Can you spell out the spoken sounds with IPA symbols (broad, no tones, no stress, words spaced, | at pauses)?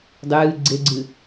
dˤɨː ɡ͡ǀeɡ͡ǀɨ